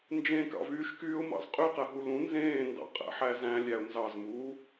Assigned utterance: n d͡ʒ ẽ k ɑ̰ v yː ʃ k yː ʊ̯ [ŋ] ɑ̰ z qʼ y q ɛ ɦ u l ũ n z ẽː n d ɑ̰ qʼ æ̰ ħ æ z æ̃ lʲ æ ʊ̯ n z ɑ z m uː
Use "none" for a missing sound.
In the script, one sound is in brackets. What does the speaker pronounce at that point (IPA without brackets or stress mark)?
m